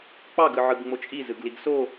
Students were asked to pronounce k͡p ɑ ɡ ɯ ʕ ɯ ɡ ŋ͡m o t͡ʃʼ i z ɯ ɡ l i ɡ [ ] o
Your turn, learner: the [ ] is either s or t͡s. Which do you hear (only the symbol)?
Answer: s